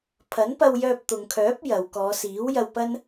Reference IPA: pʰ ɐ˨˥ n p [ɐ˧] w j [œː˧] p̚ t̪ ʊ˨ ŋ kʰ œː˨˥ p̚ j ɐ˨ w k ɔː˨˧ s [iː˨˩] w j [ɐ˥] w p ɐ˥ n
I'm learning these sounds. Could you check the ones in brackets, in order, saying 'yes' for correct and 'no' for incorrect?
yes, yes, no, no

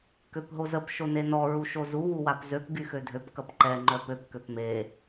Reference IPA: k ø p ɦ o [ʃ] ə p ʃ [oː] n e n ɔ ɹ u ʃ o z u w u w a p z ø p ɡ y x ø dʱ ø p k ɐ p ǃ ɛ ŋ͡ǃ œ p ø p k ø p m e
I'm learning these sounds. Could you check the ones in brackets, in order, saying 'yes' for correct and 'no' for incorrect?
no, no

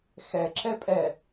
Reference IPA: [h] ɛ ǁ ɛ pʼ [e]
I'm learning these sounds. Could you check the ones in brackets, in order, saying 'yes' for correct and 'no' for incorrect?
no, no

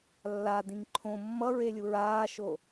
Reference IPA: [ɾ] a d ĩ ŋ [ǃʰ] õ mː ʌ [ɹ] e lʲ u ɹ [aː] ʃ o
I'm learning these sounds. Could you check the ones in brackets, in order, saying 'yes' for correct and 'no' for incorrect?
no, yes, yes, yes

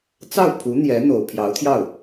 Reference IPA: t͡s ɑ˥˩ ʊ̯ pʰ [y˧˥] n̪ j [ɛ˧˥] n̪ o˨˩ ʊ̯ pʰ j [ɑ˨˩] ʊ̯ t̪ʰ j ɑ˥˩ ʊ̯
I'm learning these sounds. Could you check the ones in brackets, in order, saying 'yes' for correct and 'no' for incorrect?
no, yes, no

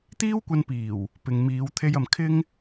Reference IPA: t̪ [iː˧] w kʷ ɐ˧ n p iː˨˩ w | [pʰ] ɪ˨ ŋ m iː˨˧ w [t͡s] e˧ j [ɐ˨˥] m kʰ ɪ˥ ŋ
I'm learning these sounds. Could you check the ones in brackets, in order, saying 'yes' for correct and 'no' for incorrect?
no, no, no, no

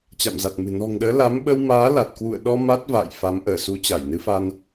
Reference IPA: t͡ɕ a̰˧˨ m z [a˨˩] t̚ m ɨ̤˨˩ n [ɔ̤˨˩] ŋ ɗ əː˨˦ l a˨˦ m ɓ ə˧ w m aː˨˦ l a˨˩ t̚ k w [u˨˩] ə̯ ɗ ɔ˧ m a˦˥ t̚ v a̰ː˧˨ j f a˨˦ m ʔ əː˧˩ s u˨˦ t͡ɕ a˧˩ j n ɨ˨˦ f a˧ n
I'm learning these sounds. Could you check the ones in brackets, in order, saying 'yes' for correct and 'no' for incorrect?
yes, yes, no

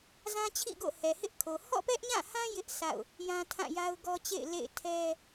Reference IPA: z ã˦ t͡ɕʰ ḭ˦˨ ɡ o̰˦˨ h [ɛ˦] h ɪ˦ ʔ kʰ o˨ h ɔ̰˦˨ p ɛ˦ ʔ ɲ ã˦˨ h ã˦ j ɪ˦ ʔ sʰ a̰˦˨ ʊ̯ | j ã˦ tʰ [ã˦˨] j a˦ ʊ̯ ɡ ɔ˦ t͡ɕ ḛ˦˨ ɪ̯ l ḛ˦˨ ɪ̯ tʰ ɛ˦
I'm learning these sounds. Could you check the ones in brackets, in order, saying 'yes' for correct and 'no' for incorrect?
no, yes

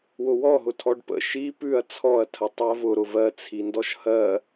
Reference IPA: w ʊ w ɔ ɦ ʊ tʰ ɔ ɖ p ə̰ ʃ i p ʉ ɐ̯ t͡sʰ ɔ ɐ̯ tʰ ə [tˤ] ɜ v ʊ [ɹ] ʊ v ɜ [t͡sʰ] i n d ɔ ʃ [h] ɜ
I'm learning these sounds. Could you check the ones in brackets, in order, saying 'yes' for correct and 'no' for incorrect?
yes, no, yes, yes

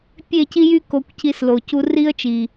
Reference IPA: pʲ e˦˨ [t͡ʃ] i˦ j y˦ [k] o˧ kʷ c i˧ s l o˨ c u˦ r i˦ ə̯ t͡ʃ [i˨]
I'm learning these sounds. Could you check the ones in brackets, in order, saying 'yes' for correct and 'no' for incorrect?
no, yes, yes

